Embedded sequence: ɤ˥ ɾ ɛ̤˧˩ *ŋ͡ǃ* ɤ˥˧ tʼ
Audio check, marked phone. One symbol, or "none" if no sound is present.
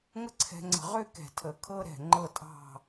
ŋ͡ǃ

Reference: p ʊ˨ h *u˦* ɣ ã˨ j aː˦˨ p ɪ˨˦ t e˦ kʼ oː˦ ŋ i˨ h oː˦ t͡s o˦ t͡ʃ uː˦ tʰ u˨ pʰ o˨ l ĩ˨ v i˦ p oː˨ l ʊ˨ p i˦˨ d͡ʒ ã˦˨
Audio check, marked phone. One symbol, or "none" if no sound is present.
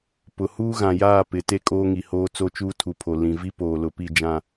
uː˦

